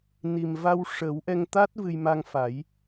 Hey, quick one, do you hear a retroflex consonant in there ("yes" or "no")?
yes